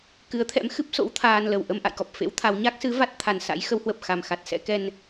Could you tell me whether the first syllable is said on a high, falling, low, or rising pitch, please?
rising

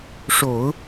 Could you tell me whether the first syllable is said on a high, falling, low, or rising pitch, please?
low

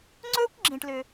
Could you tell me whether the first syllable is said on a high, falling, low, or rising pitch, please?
high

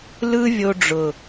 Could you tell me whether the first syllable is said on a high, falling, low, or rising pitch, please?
high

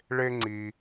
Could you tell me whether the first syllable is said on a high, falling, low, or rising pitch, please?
high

